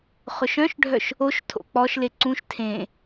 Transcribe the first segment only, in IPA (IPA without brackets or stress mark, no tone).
χ